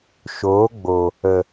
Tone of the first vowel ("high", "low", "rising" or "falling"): rising